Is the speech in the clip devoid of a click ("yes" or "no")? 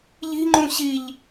no